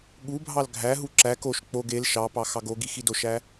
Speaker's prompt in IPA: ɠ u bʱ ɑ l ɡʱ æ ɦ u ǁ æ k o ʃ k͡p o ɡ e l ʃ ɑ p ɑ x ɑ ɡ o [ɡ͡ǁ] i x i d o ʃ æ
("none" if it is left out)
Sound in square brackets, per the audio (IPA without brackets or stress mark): ɡ